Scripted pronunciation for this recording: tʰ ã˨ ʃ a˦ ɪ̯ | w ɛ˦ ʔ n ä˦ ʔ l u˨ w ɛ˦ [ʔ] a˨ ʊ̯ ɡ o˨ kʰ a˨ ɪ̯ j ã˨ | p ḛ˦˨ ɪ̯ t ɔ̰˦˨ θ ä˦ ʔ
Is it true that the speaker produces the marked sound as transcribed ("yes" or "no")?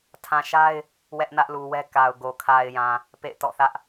no